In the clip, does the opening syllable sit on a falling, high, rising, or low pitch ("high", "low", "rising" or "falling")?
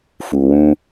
low